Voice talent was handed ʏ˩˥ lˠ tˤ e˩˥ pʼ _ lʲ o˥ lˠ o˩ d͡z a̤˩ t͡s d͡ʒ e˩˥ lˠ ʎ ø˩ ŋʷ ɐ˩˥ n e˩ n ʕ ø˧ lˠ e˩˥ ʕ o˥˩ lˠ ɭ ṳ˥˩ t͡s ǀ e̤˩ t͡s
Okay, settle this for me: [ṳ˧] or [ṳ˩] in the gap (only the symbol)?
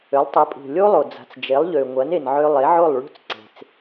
ṳ˩